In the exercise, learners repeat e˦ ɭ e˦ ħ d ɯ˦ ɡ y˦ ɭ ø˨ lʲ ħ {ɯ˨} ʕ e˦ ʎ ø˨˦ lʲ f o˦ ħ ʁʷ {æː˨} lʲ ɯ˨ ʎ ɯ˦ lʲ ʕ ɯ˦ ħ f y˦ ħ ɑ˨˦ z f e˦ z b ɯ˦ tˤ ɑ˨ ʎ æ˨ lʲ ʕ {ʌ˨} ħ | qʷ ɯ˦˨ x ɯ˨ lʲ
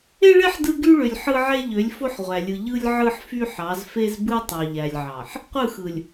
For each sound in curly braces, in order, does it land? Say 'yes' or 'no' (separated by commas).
no, no, no